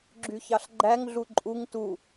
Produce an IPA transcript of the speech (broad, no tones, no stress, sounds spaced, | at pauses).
ɡ͡ǁ y ç ɑ ɬ ɡ͡ǃ æ ŋ ɮ u ǃʼ u ŋ t u